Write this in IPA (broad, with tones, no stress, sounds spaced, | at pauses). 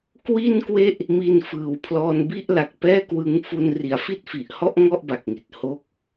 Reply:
k w i˥˩ n k w e˥˩ ʔ | m i˧ n f ɯː˨˩ w pʰ l ɔː˧ n b i˥˩ ʔ l a˨˩ k̚ p ɛː˥˩ k w ɯ˦˥ ŋ f u˧ n r i˩˦ a̯ f i˥˩ t̚ f i˨˩ ʔ h ɔ˥˩ ʔ ŋ ɔ˥˩ ʔ b a˨˩ k̚ ŋ i˨˩ t̚ h o˦˥ k̚